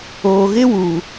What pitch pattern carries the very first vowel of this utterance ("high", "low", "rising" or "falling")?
low